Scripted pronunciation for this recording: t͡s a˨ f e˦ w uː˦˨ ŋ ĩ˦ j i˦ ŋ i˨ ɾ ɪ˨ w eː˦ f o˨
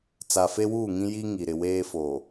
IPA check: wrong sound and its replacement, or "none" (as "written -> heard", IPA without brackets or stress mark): none